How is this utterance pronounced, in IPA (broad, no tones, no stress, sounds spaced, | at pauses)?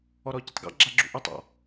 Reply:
ɔ ɾ ɔ ɟ ɨ tˤ ɡ ɑ̰ ɡ͡ǁ a ɡ͡ǁ ṵ ʔ ɵ tˤ ɔ̰